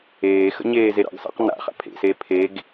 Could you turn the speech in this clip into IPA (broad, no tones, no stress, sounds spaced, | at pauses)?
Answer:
eː x ə̰ ɲ eː z e ɾ ɑ̰ ɡ s ɑ̰ q n a̰ χ a̰ pʰ ḛ s eː pʰ e ɡ